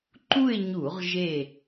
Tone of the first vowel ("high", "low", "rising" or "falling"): falling